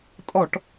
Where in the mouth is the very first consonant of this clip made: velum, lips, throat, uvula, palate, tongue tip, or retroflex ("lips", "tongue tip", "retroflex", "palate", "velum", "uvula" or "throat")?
tongue tip